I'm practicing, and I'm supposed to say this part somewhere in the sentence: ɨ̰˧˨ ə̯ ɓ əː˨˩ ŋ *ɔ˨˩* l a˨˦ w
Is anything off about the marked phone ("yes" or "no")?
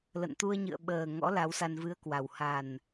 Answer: yes